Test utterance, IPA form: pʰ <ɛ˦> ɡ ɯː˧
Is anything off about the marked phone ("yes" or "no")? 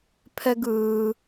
no